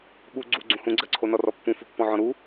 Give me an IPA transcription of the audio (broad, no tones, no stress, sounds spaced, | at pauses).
ɓ u ɡ͡ǀ u ɡ͡ǀ ũ h ũ ɡ͡ǀ ɜ ǀʰ o n ɔ r ɔ pː ũ f u pː ɔ̃ ʕ ɔ̃ ɾ u